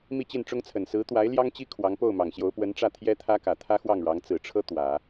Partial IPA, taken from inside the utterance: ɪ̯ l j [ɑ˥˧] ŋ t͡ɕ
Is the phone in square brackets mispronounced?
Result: yes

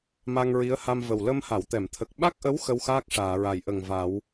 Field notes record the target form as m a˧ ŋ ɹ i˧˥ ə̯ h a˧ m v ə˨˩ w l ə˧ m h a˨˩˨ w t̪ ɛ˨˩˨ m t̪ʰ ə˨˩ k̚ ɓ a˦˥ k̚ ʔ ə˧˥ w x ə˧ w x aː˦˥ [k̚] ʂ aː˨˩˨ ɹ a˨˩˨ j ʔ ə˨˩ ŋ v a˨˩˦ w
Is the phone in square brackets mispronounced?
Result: no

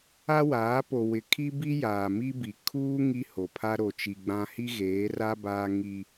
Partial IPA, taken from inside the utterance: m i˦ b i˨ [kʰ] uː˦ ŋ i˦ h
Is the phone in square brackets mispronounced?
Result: no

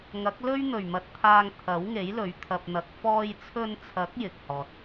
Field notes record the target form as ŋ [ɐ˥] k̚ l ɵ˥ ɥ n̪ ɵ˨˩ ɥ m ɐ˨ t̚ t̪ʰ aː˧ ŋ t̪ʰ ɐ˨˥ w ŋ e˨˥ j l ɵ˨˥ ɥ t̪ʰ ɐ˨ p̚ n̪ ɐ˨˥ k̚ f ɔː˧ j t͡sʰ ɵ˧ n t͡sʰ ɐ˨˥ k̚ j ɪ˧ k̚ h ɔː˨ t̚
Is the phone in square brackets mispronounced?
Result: yes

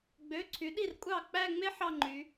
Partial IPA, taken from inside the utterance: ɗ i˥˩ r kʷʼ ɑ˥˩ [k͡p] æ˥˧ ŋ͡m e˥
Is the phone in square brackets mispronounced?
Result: no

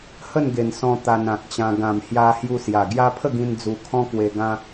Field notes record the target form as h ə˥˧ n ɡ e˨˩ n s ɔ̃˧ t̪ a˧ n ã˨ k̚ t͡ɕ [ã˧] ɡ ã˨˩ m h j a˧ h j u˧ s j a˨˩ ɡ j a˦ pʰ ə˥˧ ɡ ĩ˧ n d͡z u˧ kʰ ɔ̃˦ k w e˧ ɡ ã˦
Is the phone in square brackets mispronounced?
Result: no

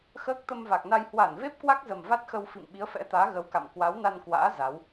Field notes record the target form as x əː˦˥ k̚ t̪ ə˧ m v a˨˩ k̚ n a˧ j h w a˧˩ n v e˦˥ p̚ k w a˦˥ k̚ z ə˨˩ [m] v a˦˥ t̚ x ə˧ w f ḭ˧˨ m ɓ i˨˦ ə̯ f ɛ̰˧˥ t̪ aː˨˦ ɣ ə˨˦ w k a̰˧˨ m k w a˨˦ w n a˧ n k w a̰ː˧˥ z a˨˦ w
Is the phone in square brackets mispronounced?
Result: no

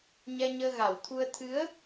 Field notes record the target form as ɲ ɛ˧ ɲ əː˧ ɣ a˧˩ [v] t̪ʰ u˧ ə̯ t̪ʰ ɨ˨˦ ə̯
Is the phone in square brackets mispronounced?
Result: yes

